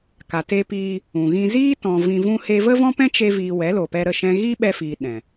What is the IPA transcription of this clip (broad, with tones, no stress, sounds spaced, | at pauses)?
k a˨ t e˧ p iː˧ | ũ˨ ɣ ĩ˧ z iː˦ t ɔ̃˨ v ĩ˧ v ũ˦ h e˦ v ə˦ v ɔ̃˦ p ɛ̃˦ t͡ʃ e˦ v iː˧ w ɛ˨˦ l o˨ p ɛ˧ ɾ ə˦˨ ʃ ɛ̃˧ ɣ i˦ ɓ ɛ˧ f iː˨ ɗ ɛ̃˨